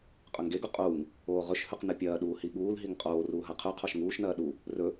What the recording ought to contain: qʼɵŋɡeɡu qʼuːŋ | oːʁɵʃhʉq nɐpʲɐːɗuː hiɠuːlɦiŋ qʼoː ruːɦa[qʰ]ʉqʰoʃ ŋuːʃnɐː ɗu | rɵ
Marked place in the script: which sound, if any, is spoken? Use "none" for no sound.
qʰ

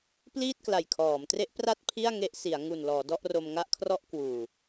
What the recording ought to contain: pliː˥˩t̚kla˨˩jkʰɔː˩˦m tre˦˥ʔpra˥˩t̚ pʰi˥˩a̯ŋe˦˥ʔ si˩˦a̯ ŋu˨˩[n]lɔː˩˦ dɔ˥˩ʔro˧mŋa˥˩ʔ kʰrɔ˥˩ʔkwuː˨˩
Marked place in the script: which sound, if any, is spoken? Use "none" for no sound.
n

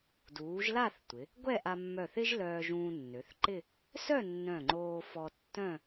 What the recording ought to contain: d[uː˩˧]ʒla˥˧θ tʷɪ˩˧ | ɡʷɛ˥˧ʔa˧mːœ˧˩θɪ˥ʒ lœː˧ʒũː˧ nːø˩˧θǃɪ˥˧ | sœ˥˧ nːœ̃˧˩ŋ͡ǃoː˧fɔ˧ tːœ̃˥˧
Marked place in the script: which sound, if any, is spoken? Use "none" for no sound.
uː˩˧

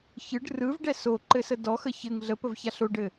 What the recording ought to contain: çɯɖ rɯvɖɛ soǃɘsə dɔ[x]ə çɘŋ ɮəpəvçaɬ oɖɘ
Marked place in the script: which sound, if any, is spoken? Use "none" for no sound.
x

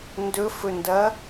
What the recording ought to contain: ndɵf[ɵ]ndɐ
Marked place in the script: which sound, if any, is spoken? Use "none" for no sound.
ɵ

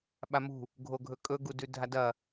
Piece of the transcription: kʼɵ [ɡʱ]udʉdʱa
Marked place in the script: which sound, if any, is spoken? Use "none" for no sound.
ɡ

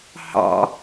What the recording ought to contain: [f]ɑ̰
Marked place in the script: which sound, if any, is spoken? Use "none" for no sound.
h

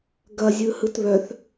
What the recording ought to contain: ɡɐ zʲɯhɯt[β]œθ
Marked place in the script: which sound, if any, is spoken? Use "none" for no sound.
β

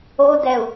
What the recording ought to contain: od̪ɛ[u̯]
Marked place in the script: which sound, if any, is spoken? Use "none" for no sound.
u̯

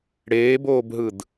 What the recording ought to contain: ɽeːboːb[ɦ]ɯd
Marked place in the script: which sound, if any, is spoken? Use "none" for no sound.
ɦ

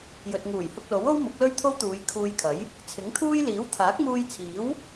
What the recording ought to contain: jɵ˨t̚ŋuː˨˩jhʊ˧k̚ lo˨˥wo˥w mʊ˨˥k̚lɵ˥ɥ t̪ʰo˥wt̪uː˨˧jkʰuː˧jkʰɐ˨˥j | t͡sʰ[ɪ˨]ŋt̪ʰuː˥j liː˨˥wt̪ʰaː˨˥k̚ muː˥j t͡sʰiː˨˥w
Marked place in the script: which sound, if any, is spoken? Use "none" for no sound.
ɪ˨˥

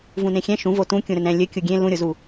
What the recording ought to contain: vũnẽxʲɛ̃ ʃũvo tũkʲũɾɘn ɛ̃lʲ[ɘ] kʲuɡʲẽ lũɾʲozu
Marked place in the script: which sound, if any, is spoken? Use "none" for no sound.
ɘ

